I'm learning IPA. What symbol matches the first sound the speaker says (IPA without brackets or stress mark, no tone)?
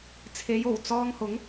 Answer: t͡sʰ